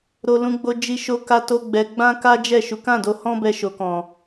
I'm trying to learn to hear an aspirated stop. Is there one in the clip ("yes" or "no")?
no